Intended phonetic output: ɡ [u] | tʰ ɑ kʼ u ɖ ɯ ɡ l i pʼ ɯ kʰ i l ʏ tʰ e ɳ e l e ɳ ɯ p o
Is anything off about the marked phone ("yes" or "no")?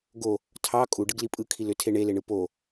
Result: yes